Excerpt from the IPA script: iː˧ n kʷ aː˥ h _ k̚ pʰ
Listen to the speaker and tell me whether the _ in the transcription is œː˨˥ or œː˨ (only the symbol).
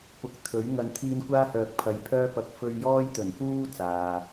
œː˨